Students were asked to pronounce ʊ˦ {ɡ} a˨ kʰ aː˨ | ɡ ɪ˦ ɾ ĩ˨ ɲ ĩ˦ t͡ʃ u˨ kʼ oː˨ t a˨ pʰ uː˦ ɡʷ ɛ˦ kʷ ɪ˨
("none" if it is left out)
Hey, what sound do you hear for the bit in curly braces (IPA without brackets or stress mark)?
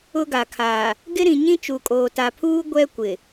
ɡ